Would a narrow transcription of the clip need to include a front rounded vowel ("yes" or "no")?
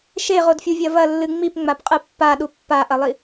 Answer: no